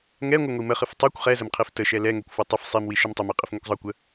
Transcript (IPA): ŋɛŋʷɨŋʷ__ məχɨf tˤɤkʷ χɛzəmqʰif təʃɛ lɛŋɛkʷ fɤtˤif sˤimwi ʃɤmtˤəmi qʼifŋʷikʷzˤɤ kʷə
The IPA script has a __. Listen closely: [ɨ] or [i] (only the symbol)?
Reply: i